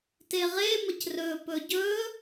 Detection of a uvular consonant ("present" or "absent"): present